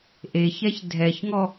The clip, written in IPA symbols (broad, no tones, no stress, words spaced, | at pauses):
ʔeçɛç dʱɛçŋɔ